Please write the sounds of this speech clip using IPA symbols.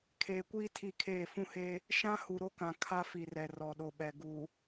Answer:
kʰeː˨kʷiː˦tʰi˦˨kʰeː˦˨ fũ˦he˦ | ʃã˦ hu˨ɾo˦kã˨ kʰa˦fi˨rɛ˨ rɔ˨ ɗo˨ ɓɛ˨ ɡu˨

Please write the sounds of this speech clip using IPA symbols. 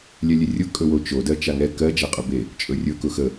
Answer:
lʲɛlʲerʲʊ kʼɵwot͡ʃo dɜt͡ʃaŋɛ kɜ d͡ʒaqʼʊbe | t͡ʃʼɵrʲɵ kʊxə

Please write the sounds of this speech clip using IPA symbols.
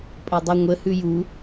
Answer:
pʼədˤʉŋʷə hʉju

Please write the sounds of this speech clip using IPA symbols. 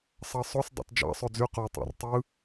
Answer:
sˤɑsˤos dˤɑ̰td͡ʒɑ̰ sˤød͡zy qo tˤæ̰rtˤɯ

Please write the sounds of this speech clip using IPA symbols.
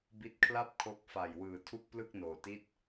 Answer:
bi˦˥t̚kʰla˥˩p̚ kʰo˦˥k̚fa˧jwɯː˧ tʰu˥˩k̚plɯ˥˩k̚noː˧ti˥˩t̚

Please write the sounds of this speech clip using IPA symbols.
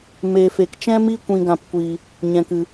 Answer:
me˧fe˧k t͡ʃɛ̃˦mi˦kʷĩ˧ɡã˧p kʷi˧ | ɲɛ̃˧kɨ˧

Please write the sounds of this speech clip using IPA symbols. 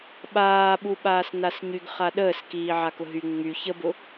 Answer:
ɓaːɓuɓaːs nasɲyɡχa ɗəːskiː ʕakʊɦy ŋ͡my çəbʊ

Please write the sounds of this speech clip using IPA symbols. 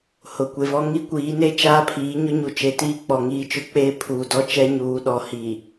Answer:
hʊ˨kʷe˨vɔ˦ ŋi˦kʷiː˨˦neː˦ t͡ʃaː˦pʰiː˨˦ɲʊ˦ɲu˨ t͡ʃe˨tiː˦ k͡pɔ˨ŋiː˦t͡ʃʊ˦ k͡peː˦pʰuː˨dɔ˦ t͡ʃɛ˦ɲuː˨˦ɗɔ˨ hi˨

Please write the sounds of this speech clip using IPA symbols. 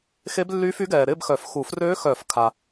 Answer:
xe˦˥blːyː˦˥fy˦˥ɡɛː˨ ɾɪː˥˧bxœ˨˩˦fxu˨˩˦frøː˦˥ xœː˨˩˦fkʰa˨

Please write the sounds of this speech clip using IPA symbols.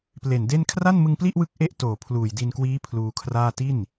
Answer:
ple˨˩nde˥˩n kʰra˥˩nmɯ˧ŋpli˥˩ʔwɯ˦˥k̚ ʔe˥˩ʔtoː˨˩ pʰluː˨˩jdi˧nkwiː˦˥ pʰluː˧kʰraː˥˩ ti˥˩n

